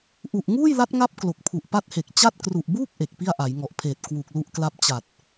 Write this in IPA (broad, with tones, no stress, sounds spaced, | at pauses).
ʔ u˨˩ ʔ ŋ uː˥˩ j l a˦˥ t̚ ŋ a˦˥ p̚ k l o˨˩ k̚ pʰ u˨˩ ʔ p a˦˥ t̚ h e˨˩ k̚ t͡ɕ a˥˩ t̚ k r u˨˩ ʔ b uː˥˩ k̚ ʔ e˨˩ k̚ p i˥˩ a̯ ʔ a˩˦ j ŋ ɔ˨˩ ʔ pʰ eː˨˩ t̚ k w u˨˩ k̚ l u˦˥ ʔ k l a˦˥ p̚ t͡ɕ a˨˩ t̚